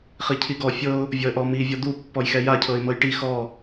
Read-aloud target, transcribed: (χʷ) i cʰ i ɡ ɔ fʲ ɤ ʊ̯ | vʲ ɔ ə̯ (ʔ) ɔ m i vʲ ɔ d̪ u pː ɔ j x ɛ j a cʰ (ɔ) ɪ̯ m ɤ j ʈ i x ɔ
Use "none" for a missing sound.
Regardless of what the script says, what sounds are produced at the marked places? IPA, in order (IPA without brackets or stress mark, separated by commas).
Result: χ, ʔ, ɤ